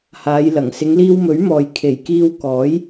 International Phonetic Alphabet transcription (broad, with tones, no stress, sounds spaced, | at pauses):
h aː˨˧ j l ɐ˨˩ ŋ s ɪ˨˧ ŋ l iː˧ w m ɵ˨˥ ɥ m ɔː˨ j kʰ e˨˩ j k iː˧ w k ɔː˨˥ j